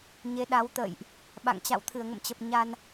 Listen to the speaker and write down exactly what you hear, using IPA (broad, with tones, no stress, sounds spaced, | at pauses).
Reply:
ɲ e˨˦ ɗ a˨˦ w t̪ ə̰ː˧˨ j ʔ | ɓ a̰˧˨ ŋ t͡ɕ a̰˧˨ w t̪ʰ ɨ˧˩ ə̯ ŋ ə̰˧˨ m t͡ɕ ə˨˩ p̚ ɲ a˧ n